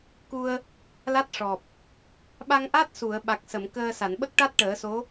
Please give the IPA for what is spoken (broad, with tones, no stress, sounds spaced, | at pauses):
k u˧ ə̯ | l a˦˥ t̚ ʂ ɔ˨˩ p̚ | ɓ a˧ ŋ ʔ a˦˥ t̚ s u˨˩˨ ə̯ ɓ a˨˩ k̚ s ə˨˩˨ m k əː˧ s a˨˩˨ n ɓ ə˦˥ k̚ ʈ a˦˥ t̚ ʈ əː˨˩˦ s o˧˥